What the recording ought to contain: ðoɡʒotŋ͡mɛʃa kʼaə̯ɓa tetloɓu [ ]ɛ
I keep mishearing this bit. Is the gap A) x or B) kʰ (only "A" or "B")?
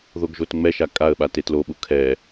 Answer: B